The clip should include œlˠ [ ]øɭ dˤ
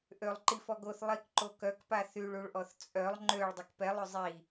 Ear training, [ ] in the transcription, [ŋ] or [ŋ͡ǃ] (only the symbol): ŋ͡ǃ